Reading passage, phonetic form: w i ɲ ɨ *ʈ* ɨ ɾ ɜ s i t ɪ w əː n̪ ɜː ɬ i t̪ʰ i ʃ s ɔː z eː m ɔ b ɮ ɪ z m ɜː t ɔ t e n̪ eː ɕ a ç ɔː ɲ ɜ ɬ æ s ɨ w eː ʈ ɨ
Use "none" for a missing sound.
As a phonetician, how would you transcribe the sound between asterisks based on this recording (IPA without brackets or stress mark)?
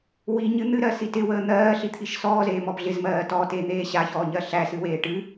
n̪